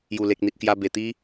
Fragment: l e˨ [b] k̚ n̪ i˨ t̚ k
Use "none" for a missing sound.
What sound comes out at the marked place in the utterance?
none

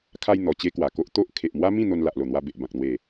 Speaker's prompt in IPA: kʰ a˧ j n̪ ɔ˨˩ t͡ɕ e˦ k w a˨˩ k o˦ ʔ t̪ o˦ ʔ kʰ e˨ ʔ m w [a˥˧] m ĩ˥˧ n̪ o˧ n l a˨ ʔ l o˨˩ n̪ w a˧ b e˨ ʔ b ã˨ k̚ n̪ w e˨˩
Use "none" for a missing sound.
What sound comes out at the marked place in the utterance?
a˦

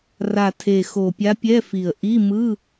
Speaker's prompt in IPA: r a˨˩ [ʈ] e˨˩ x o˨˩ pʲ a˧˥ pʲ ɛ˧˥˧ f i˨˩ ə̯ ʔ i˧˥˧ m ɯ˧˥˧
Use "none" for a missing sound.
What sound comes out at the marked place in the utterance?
tʰ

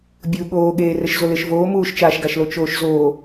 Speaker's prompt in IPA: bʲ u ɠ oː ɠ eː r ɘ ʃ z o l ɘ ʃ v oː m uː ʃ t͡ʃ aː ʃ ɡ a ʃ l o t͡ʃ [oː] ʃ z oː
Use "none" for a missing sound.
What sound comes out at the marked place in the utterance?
oː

